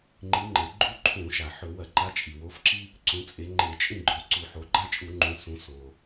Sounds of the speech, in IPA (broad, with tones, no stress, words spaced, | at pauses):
ŋ͡ǃi˨˥ŋ͡ǃe˩˧ ɡ͡ǃu˦ǃʰũ˧˩˧ʃa˩ ħɵ˧˩˧wɐ˧˩˧ǃa˨˥ t͡ʃʼi˩wo˨˥fǁi˦ | ǀũ˩˧t͡sʼe˩˧ŋ͡ǃe˧˩˧ t͡ʃʼĩ˦˨ɡ͡ǃɵ˩˧ ǀu˧˩˧ħo˩˧ɡ͡ǃa˦t͡ʃʼu˧˩˧ ŋ͡ǃũ˩˧sũ˩˧ so˩